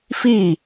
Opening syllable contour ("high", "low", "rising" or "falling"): falling